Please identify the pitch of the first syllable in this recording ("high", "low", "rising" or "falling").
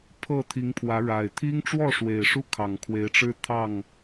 falling